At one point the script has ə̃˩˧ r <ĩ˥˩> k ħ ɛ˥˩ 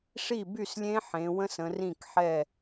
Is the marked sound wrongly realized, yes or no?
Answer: no